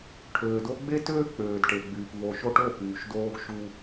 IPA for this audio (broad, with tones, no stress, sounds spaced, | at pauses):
ʈʰ øː˨ d o˧ ɡ͡b e˦ t øː˦ k͡p øː˨ d ʈ e˨ ɡ͡b yː˨ p v o˨ ʃ o˧ ʈ o˦˨ p yː˨ ʃ d oː˧ ɡ ʃ u˦